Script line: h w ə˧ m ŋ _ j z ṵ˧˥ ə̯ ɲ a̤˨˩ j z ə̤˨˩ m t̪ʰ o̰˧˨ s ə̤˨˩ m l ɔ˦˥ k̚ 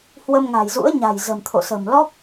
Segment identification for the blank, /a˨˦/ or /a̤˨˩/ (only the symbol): a̤˨˩